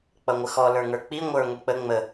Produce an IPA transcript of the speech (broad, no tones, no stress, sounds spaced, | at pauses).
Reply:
k͡p ʌ ŋʷ ə x ɔ l ə˞ ŋ ə˞ k͡p i ŋʷ ə˞ ŋʷ i k͡p ə ŋ͡m ə